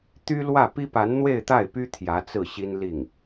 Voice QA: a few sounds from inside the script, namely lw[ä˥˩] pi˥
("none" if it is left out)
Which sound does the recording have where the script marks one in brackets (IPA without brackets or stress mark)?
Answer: ä˥˩